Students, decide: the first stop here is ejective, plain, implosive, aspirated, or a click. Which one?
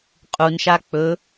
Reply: ejective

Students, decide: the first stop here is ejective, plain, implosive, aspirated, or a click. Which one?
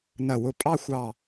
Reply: ejective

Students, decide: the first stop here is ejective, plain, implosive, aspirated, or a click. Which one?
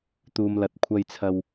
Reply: plain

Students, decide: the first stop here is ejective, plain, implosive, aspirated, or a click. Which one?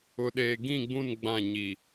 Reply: implosive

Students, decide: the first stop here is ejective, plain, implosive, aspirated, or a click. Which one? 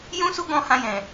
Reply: plain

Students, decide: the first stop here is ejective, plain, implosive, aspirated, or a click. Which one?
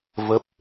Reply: plain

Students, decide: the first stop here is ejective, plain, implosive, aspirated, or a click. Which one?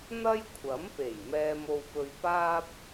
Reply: aspirated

